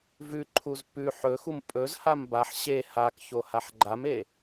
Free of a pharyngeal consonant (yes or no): no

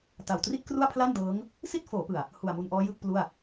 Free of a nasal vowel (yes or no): yes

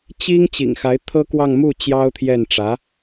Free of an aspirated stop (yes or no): no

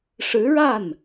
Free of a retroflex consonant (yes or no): no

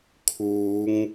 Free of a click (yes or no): yes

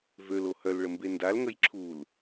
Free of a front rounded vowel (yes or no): no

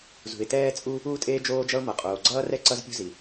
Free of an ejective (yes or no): no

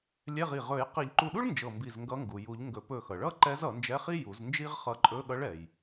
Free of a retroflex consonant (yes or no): no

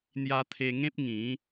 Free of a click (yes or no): yes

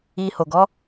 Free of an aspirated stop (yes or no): yes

